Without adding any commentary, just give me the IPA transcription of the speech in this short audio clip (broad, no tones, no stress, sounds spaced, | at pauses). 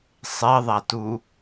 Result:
sˤ e ðˤ æ t u